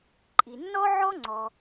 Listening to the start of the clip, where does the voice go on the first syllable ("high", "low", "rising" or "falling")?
low